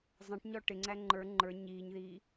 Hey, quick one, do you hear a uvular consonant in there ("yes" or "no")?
no